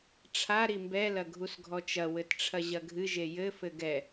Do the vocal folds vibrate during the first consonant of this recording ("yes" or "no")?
no